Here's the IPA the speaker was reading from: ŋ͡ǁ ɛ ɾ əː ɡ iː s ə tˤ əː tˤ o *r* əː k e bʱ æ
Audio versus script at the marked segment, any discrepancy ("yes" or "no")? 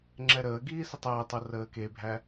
no